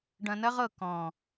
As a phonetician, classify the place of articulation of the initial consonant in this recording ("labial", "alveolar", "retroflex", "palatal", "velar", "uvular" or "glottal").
retroflex